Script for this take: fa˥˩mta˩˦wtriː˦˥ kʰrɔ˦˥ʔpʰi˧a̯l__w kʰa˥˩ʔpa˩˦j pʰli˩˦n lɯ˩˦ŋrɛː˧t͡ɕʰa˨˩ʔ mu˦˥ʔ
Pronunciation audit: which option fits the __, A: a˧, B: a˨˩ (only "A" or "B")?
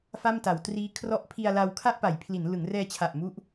A